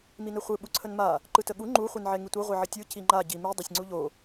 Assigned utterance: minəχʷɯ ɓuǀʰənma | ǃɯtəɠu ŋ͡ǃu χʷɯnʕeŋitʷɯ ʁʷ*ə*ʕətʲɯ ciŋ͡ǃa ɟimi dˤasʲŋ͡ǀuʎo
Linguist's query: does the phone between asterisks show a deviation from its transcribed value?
yes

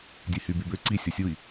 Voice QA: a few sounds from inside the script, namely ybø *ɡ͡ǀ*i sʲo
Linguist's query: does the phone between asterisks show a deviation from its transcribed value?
yes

